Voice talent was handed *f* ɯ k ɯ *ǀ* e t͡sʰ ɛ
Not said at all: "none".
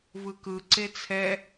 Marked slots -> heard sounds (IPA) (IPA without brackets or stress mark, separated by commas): v, ǀ